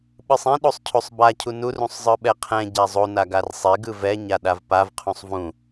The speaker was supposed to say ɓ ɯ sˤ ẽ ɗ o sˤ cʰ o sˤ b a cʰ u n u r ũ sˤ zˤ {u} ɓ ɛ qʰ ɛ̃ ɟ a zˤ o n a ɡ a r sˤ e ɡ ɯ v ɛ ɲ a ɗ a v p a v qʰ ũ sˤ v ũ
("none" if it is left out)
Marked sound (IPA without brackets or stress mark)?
ɯ